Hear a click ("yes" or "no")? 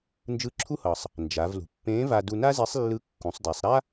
yes